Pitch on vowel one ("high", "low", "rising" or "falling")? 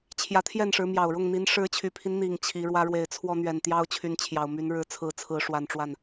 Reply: rising